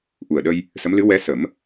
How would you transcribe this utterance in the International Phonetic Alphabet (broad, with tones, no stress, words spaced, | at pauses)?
ʔu˨˩ə̯ɗə˧j | sə˧˥mlɨ˧˥ wɛ˧˥sə˨˩˦m